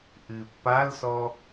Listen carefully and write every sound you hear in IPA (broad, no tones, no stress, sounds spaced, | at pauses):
ʔ ɨ pː a l s ɔ